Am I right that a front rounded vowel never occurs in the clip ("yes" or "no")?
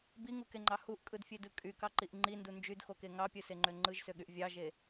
no